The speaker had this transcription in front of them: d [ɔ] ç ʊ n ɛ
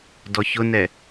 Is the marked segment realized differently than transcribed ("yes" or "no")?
no